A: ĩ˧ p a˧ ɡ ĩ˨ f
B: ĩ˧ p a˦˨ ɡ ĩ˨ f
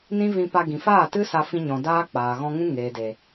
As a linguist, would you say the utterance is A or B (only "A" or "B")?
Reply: A